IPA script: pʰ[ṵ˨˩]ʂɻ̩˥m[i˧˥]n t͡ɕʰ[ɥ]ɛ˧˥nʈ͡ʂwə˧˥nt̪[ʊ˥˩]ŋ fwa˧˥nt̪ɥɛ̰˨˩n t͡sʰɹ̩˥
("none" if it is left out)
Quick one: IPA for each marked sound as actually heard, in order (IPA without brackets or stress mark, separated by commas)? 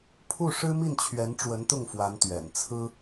u˥˩, i˥˩, ɥ, ʊ˥˩